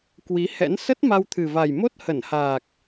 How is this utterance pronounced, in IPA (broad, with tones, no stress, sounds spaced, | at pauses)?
k w i˨˦ h ɛ̰˧˥ n s ə˦˥ t̚ m a˧ w t̪ʰ ɨ˨˩ v a˨˩ j m o˦˥ t̚ h ə˧˩ n h aː˨˩ k̚